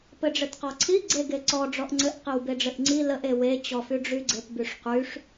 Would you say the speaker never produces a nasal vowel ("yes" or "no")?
yes